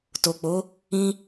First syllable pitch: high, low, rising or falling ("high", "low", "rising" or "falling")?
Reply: low